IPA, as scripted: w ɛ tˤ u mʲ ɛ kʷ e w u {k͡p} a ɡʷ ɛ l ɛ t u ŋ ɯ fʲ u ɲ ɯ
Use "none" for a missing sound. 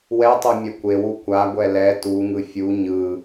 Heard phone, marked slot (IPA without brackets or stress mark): kʷ